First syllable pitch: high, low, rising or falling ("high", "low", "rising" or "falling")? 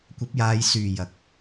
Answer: rising